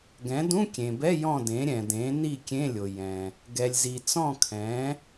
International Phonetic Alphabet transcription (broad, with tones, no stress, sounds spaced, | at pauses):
ɡ ɛ̃˩˥ d ũ˧˥˧ kʲ ẽ˩ b ɛ˧˥˧ j ɔ̃˥˨ d ẽ˩˥ ɾʲ ɛ̃˩ d ẽ˩˥ n i˥˨ kʲ ẽ˧˥˧ lʲ o˩ j ɛ̃˩ | ɡ ɛ˩ lʲ z i˩ t͡s ɔ̃˥˨ kʰ ɛ̃˩˥